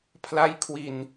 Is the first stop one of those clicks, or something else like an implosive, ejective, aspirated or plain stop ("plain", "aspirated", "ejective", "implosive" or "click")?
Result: aspirated